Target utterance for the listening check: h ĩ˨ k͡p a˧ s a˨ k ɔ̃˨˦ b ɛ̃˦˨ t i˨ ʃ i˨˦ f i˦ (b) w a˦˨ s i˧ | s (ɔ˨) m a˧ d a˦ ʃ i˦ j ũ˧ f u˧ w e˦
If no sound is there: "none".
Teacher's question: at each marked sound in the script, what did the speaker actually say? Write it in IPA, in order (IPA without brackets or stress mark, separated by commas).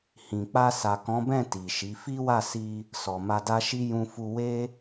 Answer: none, ɔ˨